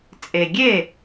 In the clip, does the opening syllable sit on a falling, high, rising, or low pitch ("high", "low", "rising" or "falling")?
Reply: low